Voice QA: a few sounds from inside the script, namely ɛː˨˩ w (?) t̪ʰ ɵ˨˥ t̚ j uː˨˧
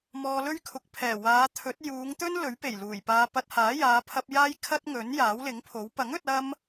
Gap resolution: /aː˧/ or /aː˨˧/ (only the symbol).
aː˨˧